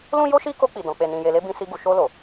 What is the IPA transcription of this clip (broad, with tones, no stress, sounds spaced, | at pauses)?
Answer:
l ũ˦ j o˦ ʃ i˦ k o˧ k͡p i˨ d ɔ̃˨ k͡p e˨ n ĩ˨ j e˨ l e˧ b ĩ˧ s i˧ ɡ u˨ ʃ o˧ l o˨